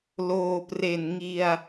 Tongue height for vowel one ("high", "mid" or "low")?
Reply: mid